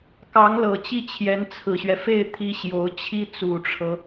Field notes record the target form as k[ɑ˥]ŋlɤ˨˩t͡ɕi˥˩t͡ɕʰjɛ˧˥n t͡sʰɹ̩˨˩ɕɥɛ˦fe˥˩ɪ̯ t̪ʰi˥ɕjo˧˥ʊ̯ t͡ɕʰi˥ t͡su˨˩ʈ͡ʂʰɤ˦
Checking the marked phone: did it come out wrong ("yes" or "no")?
yes